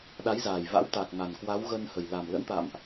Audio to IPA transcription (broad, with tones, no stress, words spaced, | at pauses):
ɗa˨˦jzaː˨˩jva̰˧˥wt̪aː˨˩k̚ ŋa˨˩nkwa˨˦w ɣə˧nhə˨˩j la˨˩mlə̰˧˥nt̪a̰˧˨mʔ